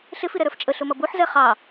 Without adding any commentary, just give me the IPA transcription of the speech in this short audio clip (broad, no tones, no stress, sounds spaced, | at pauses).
ɬ ɪ f i ɾ ɛ ɾ ə˞ f t͡ʃʼ ə ɬ ʊ m ʌ b u ħ z ɛ χ ɑ